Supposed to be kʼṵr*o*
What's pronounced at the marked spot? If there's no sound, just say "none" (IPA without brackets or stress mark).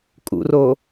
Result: o